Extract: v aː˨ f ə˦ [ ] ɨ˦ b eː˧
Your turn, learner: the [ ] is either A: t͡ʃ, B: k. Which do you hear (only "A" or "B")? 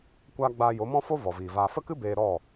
B